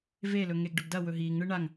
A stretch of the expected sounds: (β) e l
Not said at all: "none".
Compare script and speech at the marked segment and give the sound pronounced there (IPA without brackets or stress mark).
v